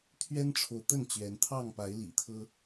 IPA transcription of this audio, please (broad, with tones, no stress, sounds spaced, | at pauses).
t̪ʰ ɥ ɛ˦ n ʈ͡ʂʰ o˨ ʊ̯ t̪ ə˥˨ n t͡ɕ ɥ ɛ˨˦ n t̪ʰ ɑ˥˨ ŋ p a˨˦ ɪ̯ l ḭ˨˩ t̪ʰ ɤ˦